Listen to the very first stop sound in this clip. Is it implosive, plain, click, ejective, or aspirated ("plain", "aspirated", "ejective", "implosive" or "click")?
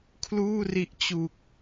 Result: aspirated